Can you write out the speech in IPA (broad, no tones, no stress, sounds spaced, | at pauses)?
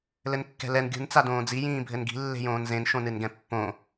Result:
l ɘ n kː ɛ̤ l ɛ n ɡʲ ṳ n t͡s a d õː d͡z i j ĩː bʱ ɘ n ɡ i̤ lː e̤ j õː n z ẽ n ʃ õ n ɨ n ɡ ɛ̃ pː õ